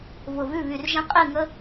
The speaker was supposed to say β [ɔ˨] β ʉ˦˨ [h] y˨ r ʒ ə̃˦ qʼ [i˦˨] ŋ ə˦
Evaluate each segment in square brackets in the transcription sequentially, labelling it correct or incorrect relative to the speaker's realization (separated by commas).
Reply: incorrect, incorrect, correct